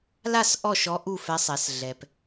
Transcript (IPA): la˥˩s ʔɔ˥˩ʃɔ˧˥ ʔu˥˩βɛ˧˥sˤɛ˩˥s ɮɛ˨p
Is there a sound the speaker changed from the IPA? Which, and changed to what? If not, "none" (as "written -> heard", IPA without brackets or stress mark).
β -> f